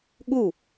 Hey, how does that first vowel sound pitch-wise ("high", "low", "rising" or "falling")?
falling